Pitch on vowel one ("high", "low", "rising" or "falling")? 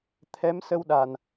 rising